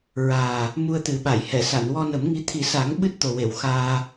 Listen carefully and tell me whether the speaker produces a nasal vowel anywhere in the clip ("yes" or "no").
no